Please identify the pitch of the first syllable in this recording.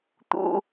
high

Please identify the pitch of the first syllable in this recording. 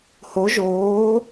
rising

